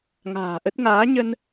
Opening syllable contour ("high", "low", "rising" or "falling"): low